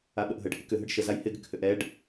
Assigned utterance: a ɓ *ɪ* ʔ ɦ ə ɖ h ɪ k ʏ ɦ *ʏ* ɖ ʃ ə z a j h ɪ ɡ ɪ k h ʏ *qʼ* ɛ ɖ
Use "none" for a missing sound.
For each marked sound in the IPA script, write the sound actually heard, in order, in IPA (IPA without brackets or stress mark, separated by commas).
ə, ə, ʔ